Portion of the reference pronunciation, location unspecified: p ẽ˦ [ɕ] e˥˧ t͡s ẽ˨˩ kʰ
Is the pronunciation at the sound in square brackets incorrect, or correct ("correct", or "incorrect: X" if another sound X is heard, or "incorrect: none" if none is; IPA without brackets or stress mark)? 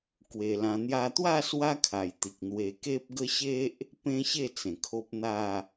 correct